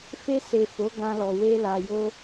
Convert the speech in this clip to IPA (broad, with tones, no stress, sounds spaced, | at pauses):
f e˧ s e˨ f o˨˦ ɡ ã˧ l ɔ˨ w e˧ l a˨ j o˧